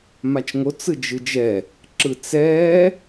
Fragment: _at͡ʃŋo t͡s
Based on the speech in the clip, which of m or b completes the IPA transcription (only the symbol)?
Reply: m